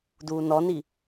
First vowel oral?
yes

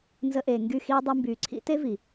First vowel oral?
yes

